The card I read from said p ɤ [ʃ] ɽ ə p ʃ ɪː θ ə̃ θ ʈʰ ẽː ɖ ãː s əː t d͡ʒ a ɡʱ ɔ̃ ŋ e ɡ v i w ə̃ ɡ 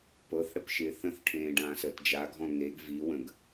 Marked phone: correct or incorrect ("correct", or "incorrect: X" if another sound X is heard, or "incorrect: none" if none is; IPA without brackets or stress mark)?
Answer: incorrect: θ